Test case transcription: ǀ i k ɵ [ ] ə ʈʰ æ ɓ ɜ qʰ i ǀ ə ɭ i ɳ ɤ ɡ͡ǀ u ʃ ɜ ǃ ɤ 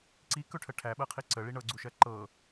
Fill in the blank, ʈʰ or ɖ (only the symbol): ʈʰ